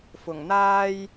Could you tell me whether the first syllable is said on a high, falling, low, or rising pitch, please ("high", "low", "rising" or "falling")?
low